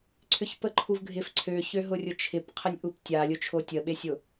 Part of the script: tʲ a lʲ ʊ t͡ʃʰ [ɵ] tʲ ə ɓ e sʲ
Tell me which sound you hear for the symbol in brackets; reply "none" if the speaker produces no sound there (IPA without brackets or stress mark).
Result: o